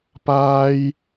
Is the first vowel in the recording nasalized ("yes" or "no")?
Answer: no